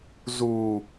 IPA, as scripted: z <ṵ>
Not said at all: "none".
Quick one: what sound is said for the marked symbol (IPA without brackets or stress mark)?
u